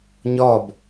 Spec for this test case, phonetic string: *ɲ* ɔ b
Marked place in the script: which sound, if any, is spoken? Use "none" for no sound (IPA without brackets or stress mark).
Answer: ɲ